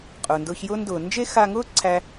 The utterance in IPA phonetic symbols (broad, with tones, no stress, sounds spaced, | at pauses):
qʼ ʊː˩ n d ʊː˧ ç j ʊː˥ n d ʊː˩ n d͡ʒ e˥ x a˧ ŋ ʊː˥ ǀʰ æ˧